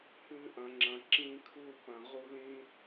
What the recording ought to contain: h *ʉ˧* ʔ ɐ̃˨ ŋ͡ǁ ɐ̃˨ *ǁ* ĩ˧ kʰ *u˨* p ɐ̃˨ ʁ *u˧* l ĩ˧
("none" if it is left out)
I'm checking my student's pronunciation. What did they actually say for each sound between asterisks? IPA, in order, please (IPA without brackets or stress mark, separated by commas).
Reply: ʉ˧, ǁ, u˧, u˧